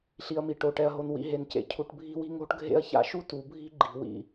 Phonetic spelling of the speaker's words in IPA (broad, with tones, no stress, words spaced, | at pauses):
ɬi˨ɐ̯mi˨ ʈo˨ʈɛ˨ɐ̯ɦo˨n wḭ˨ɦe˨ncḛ˨ cʰu˨ʈbʱi̤˦wi̤˦ ŋo̤˦ʈɡʱḛ˦ɐ̯ça̰˦ ʃu˦tu˨bʱi̤˦ ɡ͡ǃi̤˨wḭ˦˨